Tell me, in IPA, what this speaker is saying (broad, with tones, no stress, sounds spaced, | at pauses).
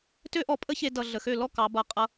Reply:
t ø˦ ʔ ɔ˧ pʼ ə˦ ç e˧ d ʌ˨ ɮ ə˨ x ø˦˨ l ɔ˦ k ɑ˨˦ b ʌ˧ qʼ ʌ˧